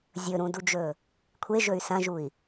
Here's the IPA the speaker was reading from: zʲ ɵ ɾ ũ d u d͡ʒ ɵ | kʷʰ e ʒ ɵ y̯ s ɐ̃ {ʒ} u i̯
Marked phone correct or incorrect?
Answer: correct